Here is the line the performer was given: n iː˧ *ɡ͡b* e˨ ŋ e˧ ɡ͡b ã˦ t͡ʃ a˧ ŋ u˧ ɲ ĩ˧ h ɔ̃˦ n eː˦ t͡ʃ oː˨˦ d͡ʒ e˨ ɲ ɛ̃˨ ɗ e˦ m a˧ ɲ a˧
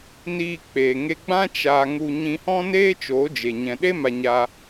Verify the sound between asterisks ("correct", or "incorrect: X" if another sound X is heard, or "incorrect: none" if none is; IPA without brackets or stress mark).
incorrect: k͡p